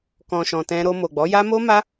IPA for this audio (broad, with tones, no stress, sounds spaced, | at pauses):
k ɔ̃˨ ʃ ɔ̃˨ t ɛ̃˧ ɾ o˧ m o˨ ɡ͡b ɔ˨˦ j a˦ m o˦ m a˦